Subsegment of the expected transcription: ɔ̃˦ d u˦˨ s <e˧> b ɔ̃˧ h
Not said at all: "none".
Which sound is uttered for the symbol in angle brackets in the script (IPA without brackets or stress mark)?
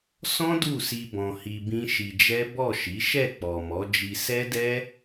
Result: i˧